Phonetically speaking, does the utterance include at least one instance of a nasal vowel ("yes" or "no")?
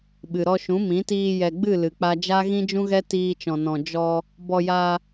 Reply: yes